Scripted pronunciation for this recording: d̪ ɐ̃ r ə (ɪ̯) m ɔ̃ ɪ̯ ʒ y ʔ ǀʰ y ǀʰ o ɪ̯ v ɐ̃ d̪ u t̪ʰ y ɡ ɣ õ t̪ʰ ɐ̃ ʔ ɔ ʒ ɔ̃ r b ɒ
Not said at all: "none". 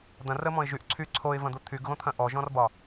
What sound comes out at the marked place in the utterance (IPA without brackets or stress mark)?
none